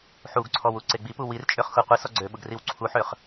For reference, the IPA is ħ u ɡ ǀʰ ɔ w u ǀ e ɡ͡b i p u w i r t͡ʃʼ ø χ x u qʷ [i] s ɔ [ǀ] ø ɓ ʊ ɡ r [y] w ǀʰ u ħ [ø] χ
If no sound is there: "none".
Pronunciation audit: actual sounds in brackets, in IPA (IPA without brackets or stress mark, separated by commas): i, ɡ͡ǀ, i, ø